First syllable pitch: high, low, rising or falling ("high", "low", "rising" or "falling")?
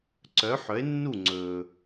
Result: rising